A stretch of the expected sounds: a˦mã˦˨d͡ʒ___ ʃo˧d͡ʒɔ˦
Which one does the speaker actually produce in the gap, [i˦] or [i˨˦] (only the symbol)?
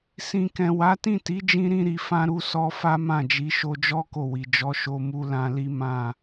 i˨˦